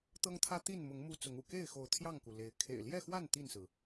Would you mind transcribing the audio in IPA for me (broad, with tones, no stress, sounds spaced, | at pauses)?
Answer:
t̪ ɤ˦ ŋ t̪ʰ ä˦ t̪ i˥˨ n m ʊ˨˦ ŋ m u˦ t͡s ʊ˨˦ ŋ ṵ˨˩ k e˥˨ ɪ̯ x o˨˦ ʊ̯ t̪ʰ j ɑ˥˨ ŋ k u˩ l e˨˦ ɪ̯ kʰ ḛ˨˩ ɪ̯ l j ɛ˥˨ x w a˥˨ n t̪ i˥˨ n s ɹ̩˩